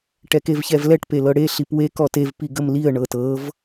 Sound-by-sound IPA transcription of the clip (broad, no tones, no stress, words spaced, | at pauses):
ʈɛkevçɛvlɛʈ pelɤɽe ɬipwe kɔtev piɡəmliə̯ ɳɤtɤv